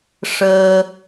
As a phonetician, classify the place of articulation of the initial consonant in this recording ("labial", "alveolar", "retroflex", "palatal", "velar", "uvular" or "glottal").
retroflex